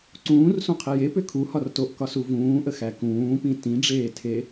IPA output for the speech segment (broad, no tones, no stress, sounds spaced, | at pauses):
ǀ ũː r s ũ qʰ i j e p ʏ kʰ u h ɒ r t o ʔ k ɒ s u v ũː ʔ ə x æ k ũː p ĩ t ĩ ɖ͡ʐ eː tʰ e